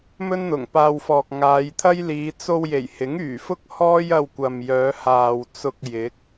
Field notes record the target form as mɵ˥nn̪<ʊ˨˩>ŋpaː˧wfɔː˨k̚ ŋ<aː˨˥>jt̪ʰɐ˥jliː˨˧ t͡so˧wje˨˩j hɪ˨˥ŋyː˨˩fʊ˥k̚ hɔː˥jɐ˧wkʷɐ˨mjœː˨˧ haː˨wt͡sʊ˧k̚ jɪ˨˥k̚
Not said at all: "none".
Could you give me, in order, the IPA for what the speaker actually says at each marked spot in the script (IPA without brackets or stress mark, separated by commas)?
ʊ˨˩, aː˨˧